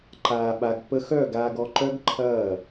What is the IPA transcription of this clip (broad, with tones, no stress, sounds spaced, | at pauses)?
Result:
ǃ aː˨ ɓ a˨ ɡ p ə˧ x œ˦˨ ɡ aː˧ ɡ ɔ˧ ǃ œ˦ ɡ ǃʰ ɐː˦˨